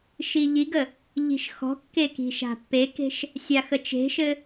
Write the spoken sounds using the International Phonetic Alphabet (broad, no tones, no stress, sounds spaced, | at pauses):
ʃ i ʎ i ɡ ə | ʎ i̤ ʃ x ɔ̤ kː e k i̤ ʃ a̤ pː e k e̤ ʃ | sʲ a x ə t͡ʃ e̤ ʃ ɘ